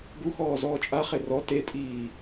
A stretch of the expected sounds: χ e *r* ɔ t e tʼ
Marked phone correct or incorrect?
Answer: correct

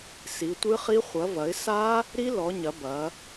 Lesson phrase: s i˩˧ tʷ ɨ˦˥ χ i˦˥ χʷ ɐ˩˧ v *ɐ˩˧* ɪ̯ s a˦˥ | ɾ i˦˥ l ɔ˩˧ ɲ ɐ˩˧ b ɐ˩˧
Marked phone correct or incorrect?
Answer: correct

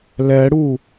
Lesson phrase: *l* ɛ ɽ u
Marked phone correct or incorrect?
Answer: correct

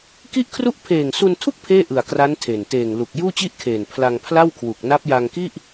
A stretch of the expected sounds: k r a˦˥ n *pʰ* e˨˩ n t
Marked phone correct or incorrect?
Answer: incorrect: tʰ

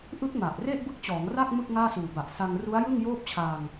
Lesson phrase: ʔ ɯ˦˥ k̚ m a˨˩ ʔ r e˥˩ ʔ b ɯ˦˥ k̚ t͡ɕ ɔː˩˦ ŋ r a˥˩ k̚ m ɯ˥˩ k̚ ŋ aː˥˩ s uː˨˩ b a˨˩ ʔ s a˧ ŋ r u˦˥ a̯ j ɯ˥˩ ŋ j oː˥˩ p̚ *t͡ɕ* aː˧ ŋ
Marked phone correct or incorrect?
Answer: incorrect: t͡ɕʰ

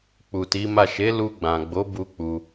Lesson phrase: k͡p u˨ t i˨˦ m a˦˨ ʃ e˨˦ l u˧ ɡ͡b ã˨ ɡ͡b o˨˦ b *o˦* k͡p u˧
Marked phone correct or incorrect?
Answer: incorrect: u˦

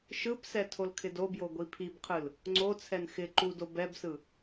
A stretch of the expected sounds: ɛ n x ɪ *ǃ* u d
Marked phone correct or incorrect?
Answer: correct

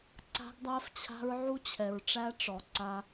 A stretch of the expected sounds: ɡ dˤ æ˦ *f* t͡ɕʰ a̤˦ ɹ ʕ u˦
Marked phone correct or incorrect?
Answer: correct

